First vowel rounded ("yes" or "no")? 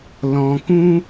yes